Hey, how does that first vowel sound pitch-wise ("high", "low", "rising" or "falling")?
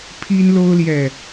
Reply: high